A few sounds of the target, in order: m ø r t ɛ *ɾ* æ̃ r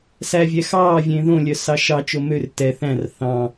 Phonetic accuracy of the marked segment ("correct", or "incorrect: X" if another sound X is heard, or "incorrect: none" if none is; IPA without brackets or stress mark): incorrect: θ